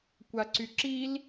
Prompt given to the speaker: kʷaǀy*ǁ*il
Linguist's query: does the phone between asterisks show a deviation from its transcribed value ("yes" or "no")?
no